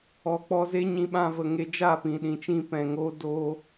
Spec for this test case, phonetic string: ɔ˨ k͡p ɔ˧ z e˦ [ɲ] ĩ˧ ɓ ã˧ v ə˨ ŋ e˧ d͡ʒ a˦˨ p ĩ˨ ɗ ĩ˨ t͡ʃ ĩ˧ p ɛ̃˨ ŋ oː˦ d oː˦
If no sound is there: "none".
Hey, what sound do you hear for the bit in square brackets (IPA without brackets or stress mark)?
ɲ